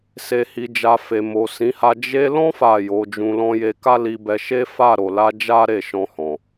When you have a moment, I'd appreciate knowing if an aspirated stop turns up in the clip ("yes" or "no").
no